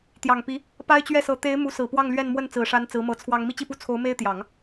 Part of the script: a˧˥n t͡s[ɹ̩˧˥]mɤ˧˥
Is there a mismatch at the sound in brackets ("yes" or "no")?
no